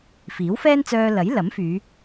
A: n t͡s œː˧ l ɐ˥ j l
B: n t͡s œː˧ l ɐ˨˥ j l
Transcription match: B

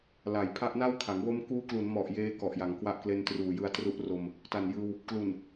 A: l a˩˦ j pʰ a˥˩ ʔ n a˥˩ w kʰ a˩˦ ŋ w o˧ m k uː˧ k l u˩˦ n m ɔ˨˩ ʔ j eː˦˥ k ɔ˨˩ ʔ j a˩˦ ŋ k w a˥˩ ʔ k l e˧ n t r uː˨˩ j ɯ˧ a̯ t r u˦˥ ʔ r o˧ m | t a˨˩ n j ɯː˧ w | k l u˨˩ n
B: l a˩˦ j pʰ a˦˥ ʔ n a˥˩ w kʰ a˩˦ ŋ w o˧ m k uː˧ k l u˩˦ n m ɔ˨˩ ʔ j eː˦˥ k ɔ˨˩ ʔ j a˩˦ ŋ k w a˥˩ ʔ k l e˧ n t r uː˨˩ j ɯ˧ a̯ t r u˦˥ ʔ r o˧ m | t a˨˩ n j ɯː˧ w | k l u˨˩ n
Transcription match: B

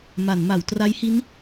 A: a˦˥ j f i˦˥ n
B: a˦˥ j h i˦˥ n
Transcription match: B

